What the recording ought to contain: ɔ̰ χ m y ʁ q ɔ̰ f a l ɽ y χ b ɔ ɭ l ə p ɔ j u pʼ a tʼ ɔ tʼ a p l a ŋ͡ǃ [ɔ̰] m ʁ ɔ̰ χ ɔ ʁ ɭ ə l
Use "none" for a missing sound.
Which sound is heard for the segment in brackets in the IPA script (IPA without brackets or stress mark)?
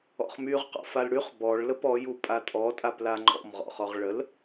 ɔ̰